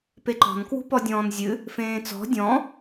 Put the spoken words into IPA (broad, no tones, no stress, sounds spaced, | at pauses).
p e ǃ ɔ̤ n k w ṳ p ɔ dʲ ɔ̃ː n zʲ ɨ | f ẽː t͡s ɔ̤ dʲ ɔ̃